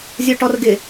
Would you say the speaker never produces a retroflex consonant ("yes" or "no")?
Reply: no